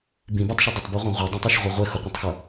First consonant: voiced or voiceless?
voiced